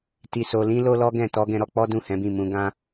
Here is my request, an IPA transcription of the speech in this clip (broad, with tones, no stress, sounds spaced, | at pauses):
t i˧ s o˧ l ĩ˦ l o˦ l ɔ˦ ɡ ɛ̃˦˨ t ɔ˧ ɡ ɛ̃˧ ɾ ɔ˧ k͡p ɔ˦ d ũ˦˨ h ɛ̃˨˦ b ĩ˦˨ m ũ˧ ɡ ã˦